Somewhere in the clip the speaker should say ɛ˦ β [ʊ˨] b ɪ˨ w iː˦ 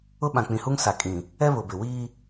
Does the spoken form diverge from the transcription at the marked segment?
no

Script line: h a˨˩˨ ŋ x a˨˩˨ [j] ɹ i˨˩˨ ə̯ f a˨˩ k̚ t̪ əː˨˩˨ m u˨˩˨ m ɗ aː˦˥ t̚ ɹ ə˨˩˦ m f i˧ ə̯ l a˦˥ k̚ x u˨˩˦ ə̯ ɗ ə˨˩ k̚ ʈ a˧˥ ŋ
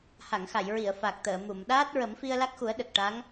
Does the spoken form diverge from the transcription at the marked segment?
no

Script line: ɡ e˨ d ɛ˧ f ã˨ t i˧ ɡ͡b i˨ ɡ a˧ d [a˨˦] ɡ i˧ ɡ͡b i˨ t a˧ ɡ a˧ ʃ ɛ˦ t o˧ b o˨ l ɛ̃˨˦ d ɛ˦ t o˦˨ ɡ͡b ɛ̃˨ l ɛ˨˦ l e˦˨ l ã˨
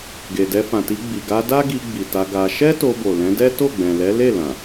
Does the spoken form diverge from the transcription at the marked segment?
yes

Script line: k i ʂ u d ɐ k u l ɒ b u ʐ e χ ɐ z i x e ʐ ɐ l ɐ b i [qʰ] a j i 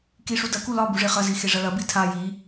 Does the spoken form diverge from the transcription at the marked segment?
yes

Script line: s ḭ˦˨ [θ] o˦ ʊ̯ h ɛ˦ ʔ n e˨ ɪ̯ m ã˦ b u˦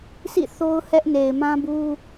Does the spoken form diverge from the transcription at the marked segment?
no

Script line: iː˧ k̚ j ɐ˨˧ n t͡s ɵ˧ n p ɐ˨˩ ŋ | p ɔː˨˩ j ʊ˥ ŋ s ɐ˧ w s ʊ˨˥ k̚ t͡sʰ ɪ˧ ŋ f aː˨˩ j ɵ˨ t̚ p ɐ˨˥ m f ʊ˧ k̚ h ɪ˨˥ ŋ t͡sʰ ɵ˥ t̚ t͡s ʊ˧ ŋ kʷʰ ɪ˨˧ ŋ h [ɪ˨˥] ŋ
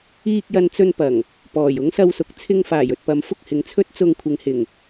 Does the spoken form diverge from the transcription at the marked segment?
yes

